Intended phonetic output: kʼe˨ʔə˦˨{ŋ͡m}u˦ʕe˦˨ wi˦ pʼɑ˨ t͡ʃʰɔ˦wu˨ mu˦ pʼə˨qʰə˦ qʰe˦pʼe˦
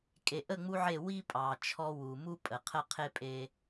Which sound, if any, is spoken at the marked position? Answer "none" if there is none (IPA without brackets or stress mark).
ŋ͡m